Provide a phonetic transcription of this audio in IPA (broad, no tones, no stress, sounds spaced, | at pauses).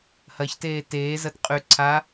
h ɐ ç t eː t eː z ɐ t qʼ y ǀʰ a